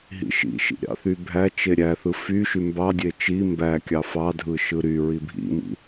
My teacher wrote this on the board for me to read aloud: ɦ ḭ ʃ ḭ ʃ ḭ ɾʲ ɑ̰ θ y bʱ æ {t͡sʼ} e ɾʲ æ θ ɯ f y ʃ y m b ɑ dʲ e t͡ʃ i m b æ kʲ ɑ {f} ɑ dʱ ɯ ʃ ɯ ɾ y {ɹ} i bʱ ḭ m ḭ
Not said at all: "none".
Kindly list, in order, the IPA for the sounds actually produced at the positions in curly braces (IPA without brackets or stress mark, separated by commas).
t͡ʃ, f, ɹ